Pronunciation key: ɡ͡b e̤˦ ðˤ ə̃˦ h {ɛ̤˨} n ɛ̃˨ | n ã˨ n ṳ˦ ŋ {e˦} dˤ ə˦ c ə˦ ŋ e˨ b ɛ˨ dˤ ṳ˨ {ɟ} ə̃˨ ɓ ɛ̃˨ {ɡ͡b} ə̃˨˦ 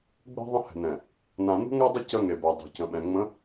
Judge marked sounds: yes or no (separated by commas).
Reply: yes, no, no, no